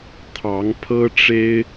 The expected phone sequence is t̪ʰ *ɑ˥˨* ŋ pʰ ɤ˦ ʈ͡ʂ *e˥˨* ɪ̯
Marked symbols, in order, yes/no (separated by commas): no, no